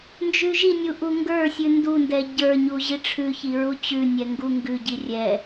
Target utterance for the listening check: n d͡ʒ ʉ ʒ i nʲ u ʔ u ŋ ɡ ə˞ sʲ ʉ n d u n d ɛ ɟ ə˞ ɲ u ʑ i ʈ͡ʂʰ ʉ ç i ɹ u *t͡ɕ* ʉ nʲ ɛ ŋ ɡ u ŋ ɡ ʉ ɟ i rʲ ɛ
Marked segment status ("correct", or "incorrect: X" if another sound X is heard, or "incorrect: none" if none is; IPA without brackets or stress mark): correct